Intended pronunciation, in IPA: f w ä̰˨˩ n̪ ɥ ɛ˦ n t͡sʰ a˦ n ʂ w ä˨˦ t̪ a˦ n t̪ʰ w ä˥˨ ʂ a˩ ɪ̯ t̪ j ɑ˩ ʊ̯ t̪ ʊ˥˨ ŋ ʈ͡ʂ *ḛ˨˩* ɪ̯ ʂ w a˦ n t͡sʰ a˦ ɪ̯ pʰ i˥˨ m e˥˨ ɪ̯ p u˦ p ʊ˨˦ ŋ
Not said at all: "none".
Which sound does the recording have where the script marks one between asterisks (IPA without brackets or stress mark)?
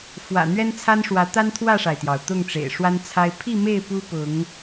ḛ˨˩